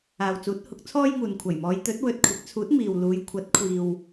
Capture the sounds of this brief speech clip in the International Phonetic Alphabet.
aː˨ w t͡s uː˨˥ t̚ h ʊ˨˥ k̚ t͡sʰ ɔː˥ j ŋ uː˨ n kʷʰ ɐ˨˩ j m ɔː˨˧ j t̪ ɵ˨˥ t̚ w ɵ˨ t̚ kʷʰ ɪ˨˥ k̚ t͡sʰ uː˨˥ t̚ m iː˨ w l uː˨˧ j kʷʰ ɐ˨˥ t̚ kʷʰ iː˨ w

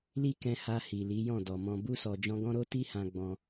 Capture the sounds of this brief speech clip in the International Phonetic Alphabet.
l i˦ k ɛ̃˧ h a˧ h i˨ l i˨˦ j ɔ̃˦˨ d ɔ˨ m ɔ̃˨ b u˧ s ɔ˨ d͡ʒ ɔ̃˧ ɡ ɔ̃˦ ɾ o˦ t i˦ h ã˧ ɡ͡b ɔ̃˧

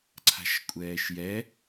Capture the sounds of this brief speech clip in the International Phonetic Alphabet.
ǀʰ a̤ ʃ kʷʼ ɛː ʃ j ɛ

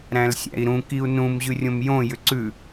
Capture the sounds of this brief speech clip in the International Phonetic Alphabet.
ɾ æ̃ l sʲ æ̰ i̯ ɾ ũ k i u̯ n ũ m ʑ ʉ rʲ õ m j õ j ʏ ǀ ʉ

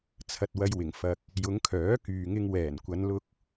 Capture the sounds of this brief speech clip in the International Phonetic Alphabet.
t͡sʰ ɐ˨ t̚ w ɐ˧ j w ɪ˨˩ ŋ f ɐ˨ k̚ | j ʊ˨˧ ŋ kʰ œː˨˥ k yː˨ ŋ ɪ˧ ŋ w ɛː˨˩ n kʷ ɐ˨˧ n l ʊ˧ k̚

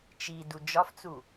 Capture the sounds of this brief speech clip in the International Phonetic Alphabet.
t͡ʃ i d u d͡ʒ ɒ f t͡s u

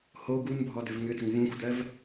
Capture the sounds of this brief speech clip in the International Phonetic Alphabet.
h o ɡ u n bʱ ɔ d ʏ v ŋ ʏ d ʏ ŋ v ũ xʷ d ɜ v

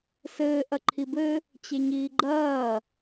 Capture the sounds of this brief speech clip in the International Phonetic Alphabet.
s ɘː ʔ ɐ ǃʰ i b ɘ | t͡ɕ e ɲ iː ɡ͡ǃ ɐː

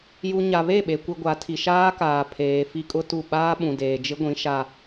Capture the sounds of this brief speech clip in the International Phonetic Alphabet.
j u˨ ɲ a˨ β e˦˨ ɓ e˨ kʷ i˨ ɡʷ a˨˦ tʰ i˨ ʃ aː˦ k aː˨ pʰ eː˨ f i˦ kʼ ʊ˦ t u˦˨ ɓ aː˦ ɓ ũ˨ d eː˨ d͡ʒ ɪ˦ ɡʷ ĩ˨˦ ʃ a˦

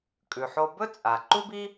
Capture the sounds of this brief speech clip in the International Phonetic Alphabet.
kʼ ʉ˩ ħ o˧ b ɵ˥ t͡sʼ a˩ ǃ u˥ b i˥

